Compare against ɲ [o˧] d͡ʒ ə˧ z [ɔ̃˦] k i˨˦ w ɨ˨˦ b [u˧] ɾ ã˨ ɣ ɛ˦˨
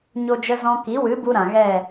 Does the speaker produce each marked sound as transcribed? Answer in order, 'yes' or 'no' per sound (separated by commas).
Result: yes, yes, yes